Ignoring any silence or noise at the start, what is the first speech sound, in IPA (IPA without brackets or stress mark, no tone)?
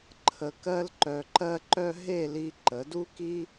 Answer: ǃʰ